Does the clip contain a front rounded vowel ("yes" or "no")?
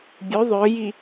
yes